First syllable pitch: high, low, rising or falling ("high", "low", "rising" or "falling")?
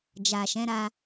low